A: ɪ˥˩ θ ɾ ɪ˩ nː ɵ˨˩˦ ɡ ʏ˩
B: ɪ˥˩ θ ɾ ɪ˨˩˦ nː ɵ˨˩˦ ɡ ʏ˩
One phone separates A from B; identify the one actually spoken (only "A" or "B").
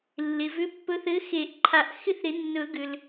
B